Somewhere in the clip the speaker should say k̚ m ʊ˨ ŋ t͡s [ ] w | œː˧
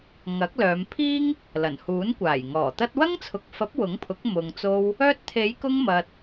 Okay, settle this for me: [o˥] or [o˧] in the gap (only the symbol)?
o˧